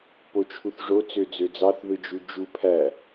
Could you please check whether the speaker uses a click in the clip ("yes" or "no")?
no